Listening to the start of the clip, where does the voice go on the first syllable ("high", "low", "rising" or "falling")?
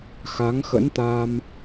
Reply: rising